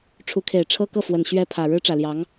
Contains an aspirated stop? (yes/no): yes